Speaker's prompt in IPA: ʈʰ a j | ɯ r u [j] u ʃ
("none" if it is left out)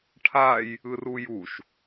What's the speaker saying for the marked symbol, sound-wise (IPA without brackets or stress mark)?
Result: j